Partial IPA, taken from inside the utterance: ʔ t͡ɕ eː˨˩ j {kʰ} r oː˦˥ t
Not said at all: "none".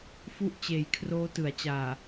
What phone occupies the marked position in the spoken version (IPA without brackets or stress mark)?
kʰ